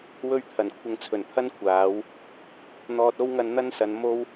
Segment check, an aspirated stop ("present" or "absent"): present